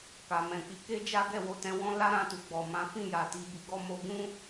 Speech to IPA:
k a˨ m ɛ̃˨ k͡p i˧ k e˦ d͡ʒ a˦ ɡ ɛ˦˨ w o˨˦ t ɛ̃˧ w ɔ̃˦ l a˦ ɾ ã˧ t u˨ ɡ͡b ɔ˨ m ã˨˦ f ĩ˦˨ j a˨ t i˧ b i˧ ɡ ɔ˦ m o˧ ɡ ũ˦

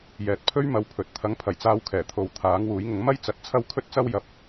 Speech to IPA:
j ɛː˨ t̚ pʰ ɵ˥ ɥ m ɐ˧ w pʰ ɵ˨˥ t̚ t̪ʰ ɐ˨˥ ŋ pʰ ɐ˨˩ j t͡s aː˧ w kʰ ɛː˨˩ t̪ʰ o˨˧ w t̪ʰ aː˨˥ ŋ w uː˨˥ j ŋ ʊ˨˥ ŋ m ɐ˥ j t͡s ɐ˨˥ t̚ t͡sʰ ɐ˥ w kʰ ɵ˥ t̚ t͡s ɐ˥ w j ɐ˨˥ p̚

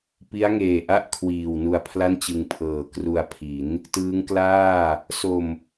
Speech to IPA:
p i˦˥ a̯ ŋ eː˨˩ ʔ a˥˩ ʔ kʰ w iː˨˩ w n u˧ a̯ pʰ l a˥˩ n t͡ɕ ɯ˧ ŋ pʰ ɤː˨˩ k r u˧ a̯ pʰ i˩˦ n | t ɯː˦˥ ŋ k l aː˥˩ | s o˧ m

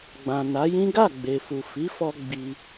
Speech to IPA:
ɡ͡b ã˨ n a˨˦ j ĩ˦ ɡ a˦˨ ɡ͡b e˨ f u˨ f i˨˦ f ɔ˧ ɡ͡b i˧

